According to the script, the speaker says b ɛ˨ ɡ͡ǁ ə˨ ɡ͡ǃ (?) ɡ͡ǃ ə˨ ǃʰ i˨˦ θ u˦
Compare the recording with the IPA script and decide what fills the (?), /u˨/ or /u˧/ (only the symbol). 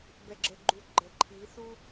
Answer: u˨